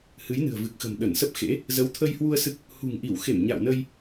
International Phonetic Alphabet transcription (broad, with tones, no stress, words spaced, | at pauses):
hɨ˨˦jnɨ̤˨˩ə̯vɨ˨˩k̚xə̤˨˩m ɗə˧˩nsə˦˥p̚xḛ˧˥ | zə˨˦wt̪ʰə˧jhwu˧ə̯ sɨ˦˥k̚ | hṳ˨˩ŋʔi˧˩wxe˧˩m ɲa̰˧˨wnə˧j